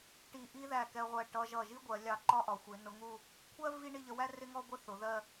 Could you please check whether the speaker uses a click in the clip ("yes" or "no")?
yes